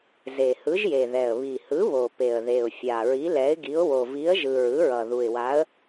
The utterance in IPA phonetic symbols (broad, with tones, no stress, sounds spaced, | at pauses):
z e˨˩ h ɯ˨˥ ʒ j e˨˩ ð ɛ˨˩ ə̯ β i˨˩ h ɯ˨˥ β o˨˩ p e˨˩ ə̯ ð e˨˩ ʊ̯ fʲ a˨˩ ɹ i˨˥ l ɛ˨˥ ɪ̯ ɡ i˨˥ ʊ̯ w o˨˩ v i˨˥ ə̯ ʒ ɯ˨˩ ɹ ɯ˨˥ ɹ ʌ˨˩ ð u˨˩ ɪ̯ w a˨˥ ə̯